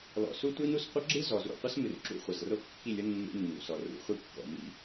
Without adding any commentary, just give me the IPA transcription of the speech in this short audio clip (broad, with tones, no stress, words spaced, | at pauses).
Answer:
lɔ̰˨su˦tʷi˦nu˨s qʷʌ˦ɡ͡ǁɨ˦zɔ˨zṵ˦˨ qʷʌ˦smɨ˨r ǁṵ˦χʷʌ˨zro˦ kːi˦˨lʲo˦ nːṵ˦nːṵ˨sɔ˨ rṵ˨˦χʷi˦˨kːɔ̰˨ mḭ˦